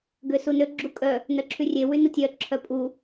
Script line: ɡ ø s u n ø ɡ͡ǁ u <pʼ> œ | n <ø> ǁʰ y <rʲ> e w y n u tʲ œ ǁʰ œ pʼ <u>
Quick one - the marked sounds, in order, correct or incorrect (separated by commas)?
incorrect, incorrect, correct, correct